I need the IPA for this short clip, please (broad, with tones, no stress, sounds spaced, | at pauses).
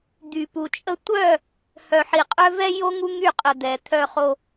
d̪ y˨ p u˨ t͡ʃʼ ə˦ tʷ œ˦˨ | h œ˨ ħ i˨ qʼ œ˦ v ɛ˦ j o˦ ŋ u˦ ŋ y˦˨ qʼ ə˨ d̪ ɛ˨ t̪ʰ œ˦ χ o˦